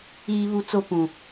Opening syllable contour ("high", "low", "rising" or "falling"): high